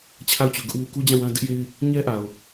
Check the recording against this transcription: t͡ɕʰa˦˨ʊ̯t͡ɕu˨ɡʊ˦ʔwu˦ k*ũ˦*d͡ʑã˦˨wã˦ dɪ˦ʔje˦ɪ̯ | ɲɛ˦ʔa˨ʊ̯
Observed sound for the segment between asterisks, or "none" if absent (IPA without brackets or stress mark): u˦